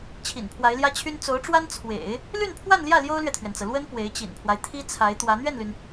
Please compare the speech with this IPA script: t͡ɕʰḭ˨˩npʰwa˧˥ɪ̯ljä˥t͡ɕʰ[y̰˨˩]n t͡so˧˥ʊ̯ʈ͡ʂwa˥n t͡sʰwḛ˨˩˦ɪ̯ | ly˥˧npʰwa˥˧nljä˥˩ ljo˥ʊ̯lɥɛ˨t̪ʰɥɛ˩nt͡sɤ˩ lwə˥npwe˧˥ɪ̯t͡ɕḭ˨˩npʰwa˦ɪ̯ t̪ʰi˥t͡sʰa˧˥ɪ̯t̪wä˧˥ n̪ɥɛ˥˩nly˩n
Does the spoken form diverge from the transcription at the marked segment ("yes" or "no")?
yes